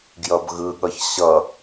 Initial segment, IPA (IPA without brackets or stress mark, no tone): ɡ